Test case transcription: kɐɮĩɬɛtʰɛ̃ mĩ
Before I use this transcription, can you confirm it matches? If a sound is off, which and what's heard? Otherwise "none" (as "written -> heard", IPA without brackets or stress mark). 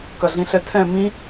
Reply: none